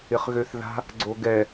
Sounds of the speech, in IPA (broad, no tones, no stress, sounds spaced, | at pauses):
ɪ χ ɣ ø θ ð a̤ | ɡ͡ǀ o ɡ ɛ